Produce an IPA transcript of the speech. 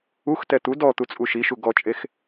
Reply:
uxtɛ t̪u dɔt̪ut͡sʼu ʃiʃu ɡɔt͡ʃʼex

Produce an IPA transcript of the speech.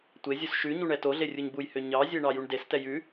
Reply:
tʷezʲus ʃʉ ɲuɳɛtoɮe rʲuɲbujhø ɲɑzʲe ɳɑjuɳdestɛ jʉ

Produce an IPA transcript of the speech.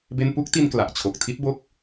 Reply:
be˥˩n pu˥˩k̚ti˧n kla˨˩ʔt͡ɕʰo˨˩k̚ tʰi˦˥t̚bo˦˥k̚

